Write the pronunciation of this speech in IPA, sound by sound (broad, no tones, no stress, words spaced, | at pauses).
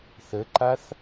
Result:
θəǃaθ